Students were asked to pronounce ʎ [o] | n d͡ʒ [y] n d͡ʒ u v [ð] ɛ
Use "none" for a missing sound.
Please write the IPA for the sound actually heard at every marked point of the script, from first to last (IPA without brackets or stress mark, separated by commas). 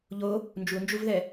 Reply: o, u, ð